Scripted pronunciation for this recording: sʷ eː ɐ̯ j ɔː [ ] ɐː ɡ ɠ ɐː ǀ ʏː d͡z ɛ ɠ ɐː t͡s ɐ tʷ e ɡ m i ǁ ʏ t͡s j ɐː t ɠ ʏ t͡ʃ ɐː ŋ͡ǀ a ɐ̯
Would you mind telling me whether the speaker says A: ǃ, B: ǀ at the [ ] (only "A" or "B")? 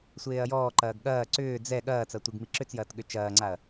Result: A